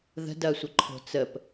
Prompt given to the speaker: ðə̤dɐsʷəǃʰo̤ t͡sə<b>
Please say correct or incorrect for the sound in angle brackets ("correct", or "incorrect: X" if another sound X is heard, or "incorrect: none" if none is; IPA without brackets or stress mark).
incorrect: p